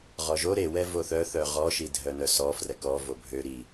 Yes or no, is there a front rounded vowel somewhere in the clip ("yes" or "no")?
yes